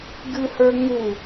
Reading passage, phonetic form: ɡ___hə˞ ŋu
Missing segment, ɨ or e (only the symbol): ɨ